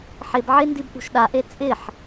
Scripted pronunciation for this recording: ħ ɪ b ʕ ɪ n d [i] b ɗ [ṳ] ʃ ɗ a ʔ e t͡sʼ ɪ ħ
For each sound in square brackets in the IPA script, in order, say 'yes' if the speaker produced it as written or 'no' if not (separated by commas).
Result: yes, yes